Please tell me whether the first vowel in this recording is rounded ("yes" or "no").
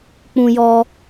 yes